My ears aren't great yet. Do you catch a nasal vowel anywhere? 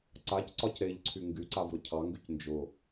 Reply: no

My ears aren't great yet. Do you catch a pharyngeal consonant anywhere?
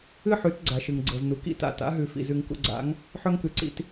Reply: yes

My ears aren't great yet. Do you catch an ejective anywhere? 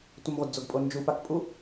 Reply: yes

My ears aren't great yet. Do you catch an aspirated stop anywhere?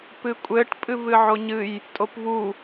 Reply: no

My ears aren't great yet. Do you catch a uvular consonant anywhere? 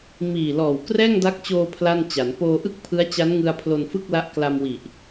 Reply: no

